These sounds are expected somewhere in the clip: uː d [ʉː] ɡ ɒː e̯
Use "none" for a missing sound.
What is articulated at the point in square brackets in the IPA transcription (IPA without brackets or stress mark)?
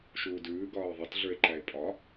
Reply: ʉː